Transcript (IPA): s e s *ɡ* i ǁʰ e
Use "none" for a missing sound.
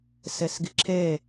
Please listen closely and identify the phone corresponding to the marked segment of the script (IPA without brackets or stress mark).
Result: ɡ